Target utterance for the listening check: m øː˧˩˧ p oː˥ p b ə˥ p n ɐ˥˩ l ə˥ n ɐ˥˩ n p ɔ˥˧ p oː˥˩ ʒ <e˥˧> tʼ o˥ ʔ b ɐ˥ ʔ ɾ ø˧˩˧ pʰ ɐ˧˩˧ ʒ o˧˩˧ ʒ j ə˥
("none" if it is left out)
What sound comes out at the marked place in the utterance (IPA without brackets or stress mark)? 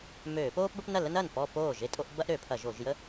e˥˧